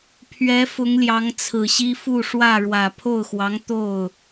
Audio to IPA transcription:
pʰɥɛ˧˥ fʊ˧˥ŋljɑ˧˥ŋt͡sʰɹ̩˨˩ɕi˥ fu˥˧ʂwä˥˩ ɻwä˨˩ pʰo˥˩ʊ̯xwɑ˧˥ŋ t̪o˥˩ʊ̯

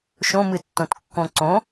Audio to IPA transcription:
ʃõmɨtːõt kːõǀõ

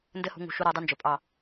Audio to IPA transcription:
ndɘ˦hṳ˧ ŋṳ˨ʃu˧ ɾa˧dˤɨ˦nd͡ʒɵ˨pʼɑ˦˨

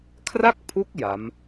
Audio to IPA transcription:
kʰra˥˩k̚pʰu˦˥k̚ ja˦˥m

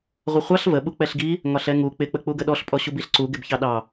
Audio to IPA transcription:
ʁʷəχʷɑɬ və ɓuk͡pɛɬɡi | ŋɒɬɛŋu k͡pɪ k͡pək͡puɡəɗɔɬ pʼɔɕubiɬǀu ɡɪbçɑɗɑ

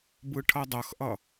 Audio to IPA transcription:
bɯʈʰʌdˤʌxʔʌ

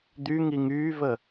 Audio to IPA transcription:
d̪yŋi ŋyːvə

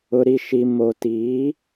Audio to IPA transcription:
ʊ˨ɾi˨ʃi˨ mo˨ti˨˦

